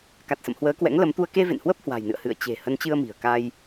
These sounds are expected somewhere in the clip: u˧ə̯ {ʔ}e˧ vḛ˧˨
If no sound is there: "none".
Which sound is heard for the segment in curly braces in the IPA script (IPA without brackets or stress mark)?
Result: k